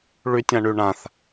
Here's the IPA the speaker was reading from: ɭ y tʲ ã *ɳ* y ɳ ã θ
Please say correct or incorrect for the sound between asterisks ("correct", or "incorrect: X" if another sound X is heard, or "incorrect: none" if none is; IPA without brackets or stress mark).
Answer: correct